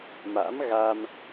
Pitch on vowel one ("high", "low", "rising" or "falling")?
rising